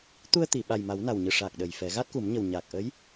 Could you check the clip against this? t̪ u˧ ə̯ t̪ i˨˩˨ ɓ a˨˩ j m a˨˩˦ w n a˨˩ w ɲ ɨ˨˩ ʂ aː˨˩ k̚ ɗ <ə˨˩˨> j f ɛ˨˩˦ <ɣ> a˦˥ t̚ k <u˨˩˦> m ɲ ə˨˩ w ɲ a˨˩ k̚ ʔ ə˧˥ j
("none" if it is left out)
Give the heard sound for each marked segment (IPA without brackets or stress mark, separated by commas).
ə˨˩, ɣ, u˨˩˦